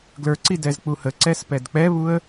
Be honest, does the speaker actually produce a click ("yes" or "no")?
yes